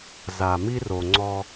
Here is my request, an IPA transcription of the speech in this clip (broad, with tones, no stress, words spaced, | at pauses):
za˨mi˦ro˨ ŋ͡ǀɔ˦